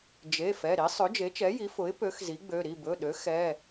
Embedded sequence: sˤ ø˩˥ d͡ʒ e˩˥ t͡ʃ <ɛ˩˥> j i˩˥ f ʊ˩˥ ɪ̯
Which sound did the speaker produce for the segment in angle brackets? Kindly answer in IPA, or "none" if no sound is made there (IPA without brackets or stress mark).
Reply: ɛ˩˥